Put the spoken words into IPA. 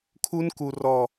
kʰu˦nku˨ rɔ˨

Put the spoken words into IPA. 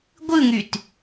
ɡʷɯŋyt

